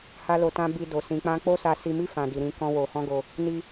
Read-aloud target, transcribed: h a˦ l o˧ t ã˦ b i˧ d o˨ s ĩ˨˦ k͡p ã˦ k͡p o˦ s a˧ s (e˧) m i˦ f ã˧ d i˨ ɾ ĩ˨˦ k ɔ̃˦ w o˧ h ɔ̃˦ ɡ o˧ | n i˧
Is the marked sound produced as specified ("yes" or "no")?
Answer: no